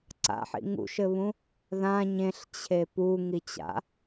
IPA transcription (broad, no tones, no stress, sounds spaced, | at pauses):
ǀ a̰ ħ ḭ ŋ ṵ ʃ ɘ β ũ | ð ã ɲ ẽ ɬ t͡ɕʰ e p u ŋ i t͡ɕ a̰